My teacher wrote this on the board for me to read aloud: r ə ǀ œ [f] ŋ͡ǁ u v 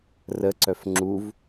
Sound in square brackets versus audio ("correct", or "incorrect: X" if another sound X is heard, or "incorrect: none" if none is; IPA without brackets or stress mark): correct